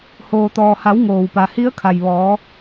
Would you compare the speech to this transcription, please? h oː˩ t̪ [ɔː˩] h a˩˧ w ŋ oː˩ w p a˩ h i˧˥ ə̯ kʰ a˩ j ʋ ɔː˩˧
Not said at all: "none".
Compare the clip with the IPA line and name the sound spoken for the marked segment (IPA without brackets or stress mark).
ɔː˩